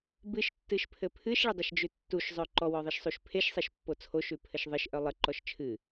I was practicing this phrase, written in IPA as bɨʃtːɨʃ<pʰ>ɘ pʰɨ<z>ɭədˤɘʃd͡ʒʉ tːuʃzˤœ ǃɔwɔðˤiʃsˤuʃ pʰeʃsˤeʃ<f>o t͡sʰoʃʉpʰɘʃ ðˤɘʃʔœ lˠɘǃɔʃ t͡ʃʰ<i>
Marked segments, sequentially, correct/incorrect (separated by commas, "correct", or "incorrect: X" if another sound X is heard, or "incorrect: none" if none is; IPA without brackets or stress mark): correct, incorrect: ʃ, incorrect: pː, incorrect: ɨ